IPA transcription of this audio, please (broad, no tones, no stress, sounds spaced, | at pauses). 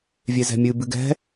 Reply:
vʲ e z ɛ̤ mʲ ɨ b ɨ ɡ ɛ̤